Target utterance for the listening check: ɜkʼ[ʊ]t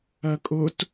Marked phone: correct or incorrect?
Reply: correct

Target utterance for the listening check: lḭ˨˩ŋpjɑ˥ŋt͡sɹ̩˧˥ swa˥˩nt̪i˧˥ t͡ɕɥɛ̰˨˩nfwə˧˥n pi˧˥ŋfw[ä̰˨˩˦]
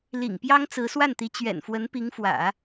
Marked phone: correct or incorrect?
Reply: correct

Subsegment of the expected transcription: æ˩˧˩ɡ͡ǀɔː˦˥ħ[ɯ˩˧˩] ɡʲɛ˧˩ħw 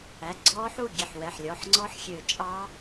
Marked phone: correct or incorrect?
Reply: incorrect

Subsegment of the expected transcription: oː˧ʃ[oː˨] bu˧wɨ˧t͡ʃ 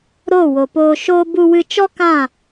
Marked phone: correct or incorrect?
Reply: incorrect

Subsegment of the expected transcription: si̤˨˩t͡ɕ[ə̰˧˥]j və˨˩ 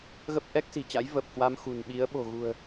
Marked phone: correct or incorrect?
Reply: incorrect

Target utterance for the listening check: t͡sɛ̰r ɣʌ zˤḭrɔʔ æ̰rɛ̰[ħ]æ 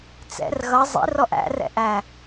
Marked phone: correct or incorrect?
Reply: incorrect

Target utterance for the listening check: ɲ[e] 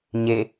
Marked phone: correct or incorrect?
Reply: correct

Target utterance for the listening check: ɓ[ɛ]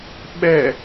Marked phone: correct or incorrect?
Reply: correct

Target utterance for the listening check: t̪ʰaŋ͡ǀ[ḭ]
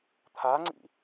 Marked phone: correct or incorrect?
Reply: correct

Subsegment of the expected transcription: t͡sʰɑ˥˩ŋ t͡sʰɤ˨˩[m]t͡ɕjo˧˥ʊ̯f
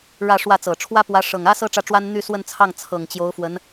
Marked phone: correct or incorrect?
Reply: incorrect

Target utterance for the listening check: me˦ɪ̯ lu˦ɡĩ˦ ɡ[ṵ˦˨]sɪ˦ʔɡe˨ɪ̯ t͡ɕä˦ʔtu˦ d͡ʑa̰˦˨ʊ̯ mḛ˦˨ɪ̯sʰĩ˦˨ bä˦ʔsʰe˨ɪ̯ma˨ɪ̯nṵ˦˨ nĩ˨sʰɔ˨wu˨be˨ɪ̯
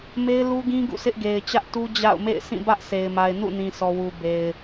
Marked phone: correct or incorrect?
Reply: correct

